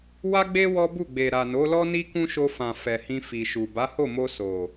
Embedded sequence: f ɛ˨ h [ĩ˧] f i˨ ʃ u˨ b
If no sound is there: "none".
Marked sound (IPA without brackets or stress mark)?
ĩ˧